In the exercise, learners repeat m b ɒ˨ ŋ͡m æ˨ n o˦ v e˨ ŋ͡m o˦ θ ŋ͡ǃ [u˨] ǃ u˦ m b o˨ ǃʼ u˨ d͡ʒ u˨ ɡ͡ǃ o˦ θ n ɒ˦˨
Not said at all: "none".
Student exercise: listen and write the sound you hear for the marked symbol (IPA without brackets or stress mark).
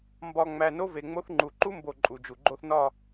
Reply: u˨